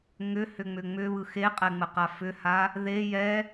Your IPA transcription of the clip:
ŋʏhʏ ŋ͡mʏŋ͡mʏβɯ xeqʼɛ ŋ͡məqafʏha | ðe jɛ

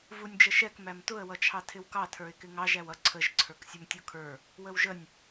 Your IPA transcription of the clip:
vunʲd͡ʒəʃɛk mæmtʊə̯ wʌt͡ʃʰɑtʰɪwkɑ tʰə˞ɪ̯kɪŋɑʒ æwʌ ǀʰəʒ ǀʰə˞ksʲʊmtʲukʰə˞ | wəwʒənʲ

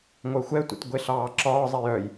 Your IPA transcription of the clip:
ŋʷœxʷɛtʷḭt ɡʷeɬɑːǁɒːzˤi jœj

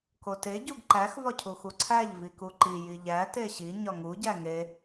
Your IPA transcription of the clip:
kote ɟuɡǃæx vɒcʰuxuǀʰæʎ vikuǃi jiʎæ teɕi ɲɒŋu ɟæŋe

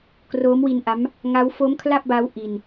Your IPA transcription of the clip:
kroː˦˥mwi˧nʔa˦˥m | ŋa˦˥w fo˦˥mkʰla˥˩p̚ba˦˥w ʔi˧n

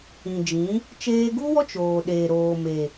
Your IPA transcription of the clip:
ĩ˨d͡ʒĩ˨˦ | t͡ʃeː˧ɡu˦wɔ˦ t͡ʃoː˨ɗeː˨ɾoː˨ me˨

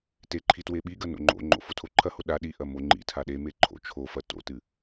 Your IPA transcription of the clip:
teǃʰi tweɓiɡɐ no̰ŋ͡ǃo̰ŋ͡ǃo̰ fotʰoǃʰɐho ɗa ɗi ʔɐmoŋ͡ǃḭtʰa ɗeme ǃʰo̰ t͡ʃʰofɐ to̰tɨ

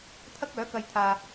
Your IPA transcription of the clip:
t̪ʰɐ˥k̚œː˨˥kɐ˧jt̪ʰaː˧

